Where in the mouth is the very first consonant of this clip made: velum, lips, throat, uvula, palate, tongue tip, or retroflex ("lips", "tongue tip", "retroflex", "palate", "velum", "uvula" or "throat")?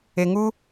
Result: velum